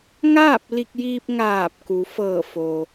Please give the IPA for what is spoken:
ŋ aː˥˨ p̚ l i˧ k̚ j iː˧ p̚ ŋ aː˧˩ p̚ k u˩˧ f ɤː˧˩ f o˩

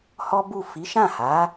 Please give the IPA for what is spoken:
h ɔ˦ b u˦˨ f i˨˦ ʃ ã˦˨ h a˨˦

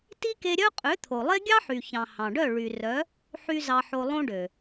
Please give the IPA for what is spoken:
t i˦ k e˧ ɾʲ œ˦ qʼ ø˨˦ t̪ʰ o˨ lˠ e˦ ɡʲ ɑ˦ ħ y˨ ç ɑ̃˨ h ɑ̃˨ ɖ œ˦˨ ɭ y˨ r œ˨˦ | ħ y˦ z ɑ˧ ħ o˧ lˠ õ˦ ɖ ø˨

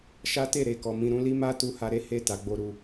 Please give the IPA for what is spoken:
ʃ a˦ t e˦˨ ɾ e˨ k ɔ˨ m ĩ˧ ɾ ũ˧ l i˦ m a˦ t u˧ h a˧ ɾ e˦ h e˦˨ t a˧ ɡ͡b o˦ ɾ u˧

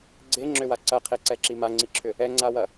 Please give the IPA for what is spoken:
ɡ͡ǀ e ŋ͡ǁ ʏ w a ǀ ɐ qʰ e ǀ ɛ ǁ i m a ŋ͡ǀ i ǁʰ ʏ | ɛ ŋ͡ǀ a w ɐ

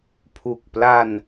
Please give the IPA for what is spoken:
pʰ u˨˩ k̚ p l a˧ n

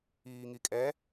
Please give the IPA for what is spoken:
iː ŋ i kʼ ɛ

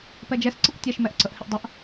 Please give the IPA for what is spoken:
p ɛ d͡ʒ ɛ s ǀ ə kʷ tʲ ɛ ʃ m ɛ ʔ ǀ ə ʔ h ɪ ʔ dˤ ə ʔ

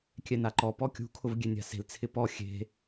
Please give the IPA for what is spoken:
kʲ ɛ n a ǃ ɔ p ɔ kʲ ṳ kʰ ʊ v ɡʲ e nʲ a̤ s e̤ l t͡sʰ ɪ p ɔ xʲ e̤

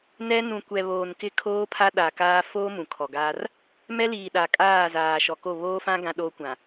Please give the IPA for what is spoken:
n ɛ˦ n ũ˨ kʷ ɛ˨ β oː˨ n k ɪ˦ kʰ oː˦ pʰ a˦ ɗ a˨ k aː˦ f oː˦ m ũ˨ kʰ ɔ˨ ɡ aː˦ r | m ɛ˦ l iː˨ ɗ a˨ kʼ aː˦˨ z aː˨ ʃ ɔ˨ k o˦˨ β oː˦ f ã˦ ɡ ã˦ ɗ oː˦ kʷ ã˨

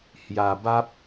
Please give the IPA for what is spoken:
h j a˧ b a˦ p̚

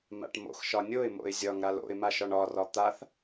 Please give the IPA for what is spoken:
m a̰ ʈ m o̰ x ʃ ɒ nʲ o ɪ̯ m o̰ ɪ̯ zʲ ɒ ŋ ɾ a l o̰ ɪ̯ m a ʃ ɒ ɳ ɒ r ɒ t̪ a θ

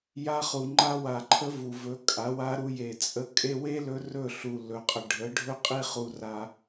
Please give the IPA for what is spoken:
j a˧ χ u˨ ŋ͡ǃ a˧ w a˨ ǃʰ ə˧ v u˨ v ɵ˨˦ kʼ a˨˦ w a˧ ɾ u˧ j e˨ t͡sʼ ə˧ kʼ e˧ w e˦ l ɵ˧ r ɵ˦˨ ɬ u˨ l ɵ˨ qʼ ə˨ ɖʱ ə˨˦ ɖʱ ɵ˦ qʼ i˦ χ u˧ r a˧

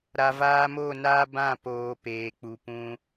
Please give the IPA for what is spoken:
ɾ a˨ v aː˧ m o˦˨ n aː˦ b ã˦˨ p oː˨ p eː˨ k͡p u˨ p ũ˧

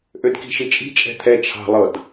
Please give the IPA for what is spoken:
ʔ ø d k i̤ ʃ i t͡ʃʼ i̤ t͡ʃʼ ɛ̤ t̪ʰ ɛ t͡ʃʰ ɑ̤ lˠ ɤ d

